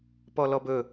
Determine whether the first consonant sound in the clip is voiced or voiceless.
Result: voiceless